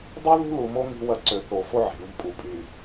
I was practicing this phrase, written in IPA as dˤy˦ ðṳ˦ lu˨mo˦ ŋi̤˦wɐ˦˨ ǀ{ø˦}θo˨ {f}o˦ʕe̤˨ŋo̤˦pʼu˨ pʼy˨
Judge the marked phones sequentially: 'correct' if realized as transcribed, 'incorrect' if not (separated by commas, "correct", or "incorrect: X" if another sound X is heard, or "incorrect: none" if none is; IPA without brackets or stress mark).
incorrect: ø˨, correct